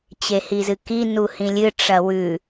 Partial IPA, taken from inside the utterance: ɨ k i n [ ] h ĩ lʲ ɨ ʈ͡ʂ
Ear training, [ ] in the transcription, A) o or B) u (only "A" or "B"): B